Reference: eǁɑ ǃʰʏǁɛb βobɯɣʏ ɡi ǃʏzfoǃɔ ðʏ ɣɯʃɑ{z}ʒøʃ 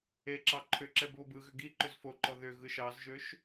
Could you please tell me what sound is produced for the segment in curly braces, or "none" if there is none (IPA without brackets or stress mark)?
z